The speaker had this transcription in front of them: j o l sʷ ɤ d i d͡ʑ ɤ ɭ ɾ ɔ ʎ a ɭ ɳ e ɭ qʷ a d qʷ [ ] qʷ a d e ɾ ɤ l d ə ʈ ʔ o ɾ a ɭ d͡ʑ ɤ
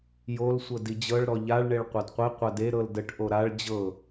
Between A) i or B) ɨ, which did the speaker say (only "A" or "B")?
A